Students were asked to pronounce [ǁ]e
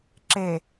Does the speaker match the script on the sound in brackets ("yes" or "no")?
yes